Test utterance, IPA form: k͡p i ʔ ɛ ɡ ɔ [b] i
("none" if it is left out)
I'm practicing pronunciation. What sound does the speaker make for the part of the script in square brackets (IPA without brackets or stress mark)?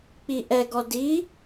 d